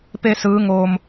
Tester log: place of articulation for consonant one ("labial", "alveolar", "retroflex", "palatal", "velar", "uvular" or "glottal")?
labial